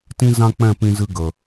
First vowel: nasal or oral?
nasal